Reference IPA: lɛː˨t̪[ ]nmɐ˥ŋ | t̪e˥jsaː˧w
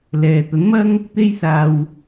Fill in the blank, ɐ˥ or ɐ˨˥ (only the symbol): ɐ˨˥